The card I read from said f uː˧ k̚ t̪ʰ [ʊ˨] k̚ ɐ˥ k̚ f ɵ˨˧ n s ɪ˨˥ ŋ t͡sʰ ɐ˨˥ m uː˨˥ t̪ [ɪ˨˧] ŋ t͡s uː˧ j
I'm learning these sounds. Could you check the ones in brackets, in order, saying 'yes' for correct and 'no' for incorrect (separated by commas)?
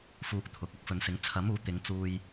yes, yes